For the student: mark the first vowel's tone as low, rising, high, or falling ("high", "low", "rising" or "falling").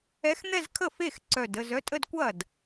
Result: rising